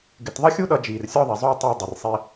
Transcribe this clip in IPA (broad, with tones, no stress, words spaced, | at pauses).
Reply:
ɡɪ˧t ðˤʌ˥xʲu˥ɗʌ˧ d͡ʒiː˩rsʲɔ˥ðˤi˩ zˤʊ˥j tˤɪː˧ dˤɪ˩rsˤi˧